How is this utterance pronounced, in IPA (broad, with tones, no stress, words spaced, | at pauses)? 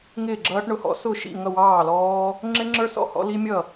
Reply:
ŋɪː˥˩ɡ͡ǁʌː˦˥ʈɳʊ˥˩hɔ̰˦˥ sʊ˥˩ ʃḭ˥˩ ŋʌ˥˩wɑː˥˩lɔː˦˥ | ŋ͡ǁɪ˦˥ŋ͡ǁə˞˦˥ sɔ̰˥˩hɔ̰˦˥li˦˥mʲʌ˥˩